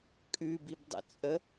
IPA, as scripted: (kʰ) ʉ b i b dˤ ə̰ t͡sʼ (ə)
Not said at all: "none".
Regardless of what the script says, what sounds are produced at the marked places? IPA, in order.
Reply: kʼ, ə

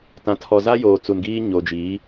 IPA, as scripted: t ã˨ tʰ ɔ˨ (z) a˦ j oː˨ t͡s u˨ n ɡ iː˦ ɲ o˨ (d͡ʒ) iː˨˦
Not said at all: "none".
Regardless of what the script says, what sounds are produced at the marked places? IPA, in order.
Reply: z, d͡ʒ

